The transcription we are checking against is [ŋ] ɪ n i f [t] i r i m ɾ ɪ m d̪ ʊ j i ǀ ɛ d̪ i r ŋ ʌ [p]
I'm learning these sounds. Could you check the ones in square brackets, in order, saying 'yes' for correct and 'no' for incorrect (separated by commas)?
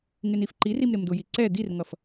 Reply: yes, no, no